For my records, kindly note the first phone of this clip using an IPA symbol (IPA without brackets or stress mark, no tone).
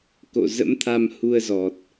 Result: k